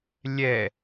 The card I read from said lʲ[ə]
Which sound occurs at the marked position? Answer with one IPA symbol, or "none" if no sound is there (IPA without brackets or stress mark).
ɛ